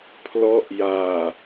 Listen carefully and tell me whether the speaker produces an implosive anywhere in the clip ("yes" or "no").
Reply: no